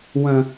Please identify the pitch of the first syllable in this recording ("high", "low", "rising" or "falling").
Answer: high